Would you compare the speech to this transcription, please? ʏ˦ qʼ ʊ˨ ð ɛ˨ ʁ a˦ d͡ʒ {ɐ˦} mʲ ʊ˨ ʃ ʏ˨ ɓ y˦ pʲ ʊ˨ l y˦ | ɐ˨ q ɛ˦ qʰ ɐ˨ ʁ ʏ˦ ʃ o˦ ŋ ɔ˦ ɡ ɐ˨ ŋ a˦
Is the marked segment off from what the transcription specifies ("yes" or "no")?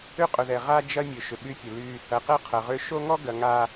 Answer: no